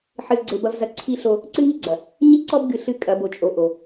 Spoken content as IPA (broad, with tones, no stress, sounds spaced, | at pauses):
ħ ɨ˨ z ɡ͡ǀ e˨ b ɐ˨ v z ɐ˨ ǀʰ i˦ ɬ o˦ | ǀ ɨ˦ ŋ i˦ ɡ͡ǀ ɐ˨ | ɲ i˦ ǀ ɔ˦ b ɡ ɨ˨ ɬ ɨ˦˨ kʼ ɐ˨˦ b o˨ t͡ʃʼ o˨ ʔ o˨